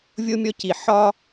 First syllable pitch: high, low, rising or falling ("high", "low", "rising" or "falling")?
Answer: high